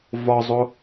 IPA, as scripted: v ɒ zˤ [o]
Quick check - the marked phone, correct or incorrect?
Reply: correct